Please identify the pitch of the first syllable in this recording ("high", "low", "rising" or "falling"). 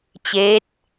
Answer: rising